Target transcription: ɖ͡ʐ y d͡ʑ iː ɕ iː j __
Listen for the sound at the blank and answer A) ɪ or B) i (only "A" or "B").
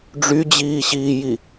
B